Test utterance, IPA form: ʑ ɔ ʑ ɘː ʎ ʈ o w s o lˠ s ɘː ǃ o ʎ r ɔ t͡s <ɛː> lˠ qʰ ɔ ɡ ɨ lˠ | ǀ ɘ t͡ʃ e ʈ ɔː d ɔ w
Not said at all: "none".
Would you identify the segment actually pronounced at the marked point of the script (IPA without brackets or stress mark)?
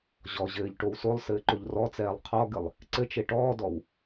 ɛː